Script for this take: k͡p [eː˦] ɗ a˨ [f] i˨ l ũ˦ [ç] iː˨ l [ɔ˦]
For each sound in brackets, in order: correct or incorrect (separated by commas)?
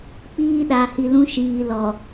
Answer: incorrect, incorrect, incorrect, incorrect